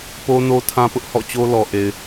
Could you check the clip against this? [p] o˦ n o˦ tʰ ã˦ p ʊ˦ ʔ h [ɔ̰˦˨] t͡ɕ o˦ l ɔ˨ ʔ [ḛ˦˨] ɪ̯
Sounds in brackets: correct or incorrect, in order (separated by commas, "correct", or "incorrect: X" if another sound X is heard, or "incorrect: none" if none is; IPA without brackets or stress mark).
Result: correct, correct, incorrect: e˨